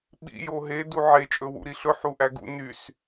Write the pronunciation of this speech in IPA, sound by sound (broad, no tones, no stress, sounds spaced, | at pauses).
ɓ ḭ j o ɦ e d u ʕ e t͡ʃʼ ɵ w ṵ ɾ i ɬ ɵ ħ u ʔ æ ɡ ṵ n y s